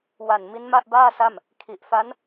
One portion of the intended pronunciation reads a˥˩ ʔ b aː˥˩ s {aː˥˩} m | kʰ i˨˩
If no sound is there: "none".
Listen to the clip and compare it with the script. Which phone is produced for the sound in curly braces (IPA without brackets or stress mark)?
a˥˩